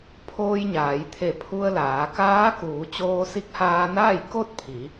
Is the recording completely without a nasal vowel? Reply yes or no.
yes